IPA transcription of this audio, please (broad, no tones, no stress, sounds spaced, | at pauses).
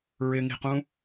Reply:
ɹ ɪ ŋ i̤ q ũ